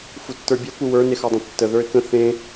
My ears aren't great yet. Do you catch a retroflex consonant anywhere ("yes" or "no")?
no